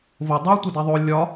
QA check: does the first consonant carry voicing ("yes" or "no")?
yes